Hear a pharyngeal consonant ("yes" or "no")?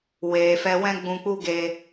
no